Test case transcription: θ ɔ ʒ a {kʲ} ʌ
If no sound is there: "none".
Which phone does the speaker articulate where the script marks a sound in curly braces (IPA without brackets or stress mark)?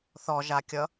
kʲ